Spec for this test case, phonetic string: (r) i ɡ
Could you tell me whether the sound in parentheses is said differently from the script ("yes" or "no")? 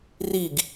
no